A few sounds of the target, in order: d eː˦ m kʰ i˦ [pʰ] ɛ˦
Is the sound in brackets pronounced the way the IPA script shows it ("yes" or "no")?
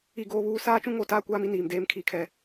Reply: no